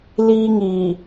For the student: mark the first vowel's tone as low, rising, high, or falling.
high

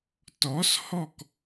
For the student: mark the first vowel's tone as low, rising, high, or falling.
rising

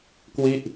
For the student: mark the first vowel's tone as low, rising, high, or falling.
falling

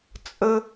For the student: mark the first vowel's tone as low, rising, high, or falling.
high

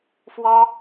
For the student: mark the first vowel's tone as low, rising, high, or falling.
high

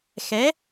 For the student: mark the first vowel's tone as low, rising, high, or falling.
rising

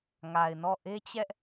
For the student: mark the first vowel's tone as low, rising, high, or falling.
low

